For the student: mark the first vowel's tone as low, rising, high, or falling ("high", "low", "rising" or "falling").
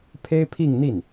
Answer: high